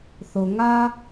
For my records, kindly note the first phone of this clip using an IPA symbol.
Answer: θ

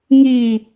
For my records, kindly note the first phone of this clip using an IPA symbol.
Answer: ŋ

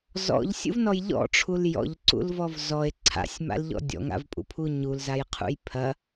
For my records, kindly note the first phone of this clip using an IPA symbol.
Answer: z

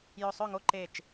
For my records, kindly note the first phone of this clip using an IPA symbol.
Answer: j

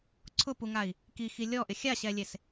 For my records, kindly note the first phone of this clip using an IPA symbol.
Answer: ǀʰ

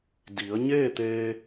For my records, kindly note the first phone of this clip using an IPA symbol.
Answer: d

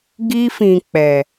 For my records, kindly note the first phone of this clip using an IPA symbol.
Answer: ɡ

